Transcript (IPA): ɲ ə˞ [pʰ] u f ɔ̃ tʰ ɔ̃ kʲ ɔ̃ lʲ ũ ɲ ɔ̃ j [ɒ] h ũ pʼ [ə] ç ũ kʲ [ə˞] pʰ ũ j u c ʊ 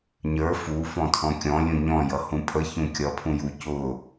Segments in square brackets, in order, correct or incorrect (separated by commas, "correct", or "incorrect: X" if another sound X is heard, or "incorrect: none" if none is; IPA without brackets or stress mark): incorrect: f, incorrect: ʌ, correct, incorrect: ʌ